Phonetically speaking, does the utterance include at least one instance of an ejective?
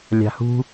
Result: no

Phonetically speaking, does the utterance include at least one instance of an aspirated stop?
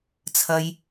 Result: yes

